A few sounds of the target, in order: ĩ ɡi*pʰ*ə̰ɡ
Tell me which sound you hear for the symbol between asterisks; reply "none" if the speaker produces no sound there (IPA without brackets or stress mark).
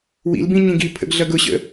pʰ